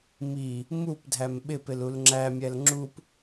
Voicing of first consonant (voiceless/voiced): voiced